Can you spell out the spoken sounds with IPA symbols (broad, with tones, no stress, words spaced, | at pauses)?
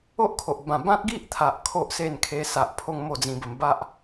o˦ʔkʰo˨ʔbã˨˩ bã˦t̚ɡi˦ʔt̪ʰa˨ʔ kʰo˦ʔse˥˧nkʰe˧sa˨ʔ pʰo˦ŋmo˥˧d͡zĩ˧bə˧m ba˦ʔ